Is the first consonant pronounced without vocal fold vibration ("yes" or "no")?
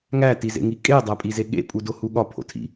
no